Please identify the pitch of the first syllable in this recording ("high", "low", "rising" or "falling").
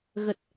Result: low